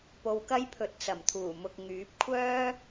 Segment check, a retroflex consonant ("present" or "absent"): absent